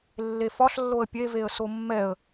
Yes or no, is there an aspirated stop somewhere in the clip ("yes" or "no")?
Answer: no